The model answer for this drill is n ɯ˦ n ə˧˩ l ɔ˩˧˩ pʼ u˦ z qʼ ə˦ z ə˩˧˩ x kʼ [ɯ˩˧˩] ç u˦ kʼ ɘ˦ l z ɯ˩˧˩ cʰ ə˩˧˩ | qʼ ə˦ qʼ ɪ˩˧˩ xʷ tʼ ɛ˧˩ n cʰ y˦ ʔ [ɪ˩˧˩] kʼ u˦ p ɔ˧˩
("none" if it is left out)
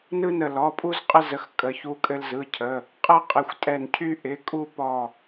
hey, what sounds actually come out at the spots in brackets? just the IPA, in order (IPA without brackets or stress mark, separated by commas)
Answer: ə˩˧˩, ɪ˩˧˩